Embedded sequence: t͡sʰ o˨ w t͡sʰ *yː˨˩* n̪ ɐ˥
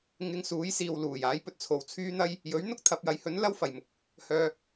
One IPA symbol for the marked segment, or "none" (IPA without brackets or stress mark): yː˥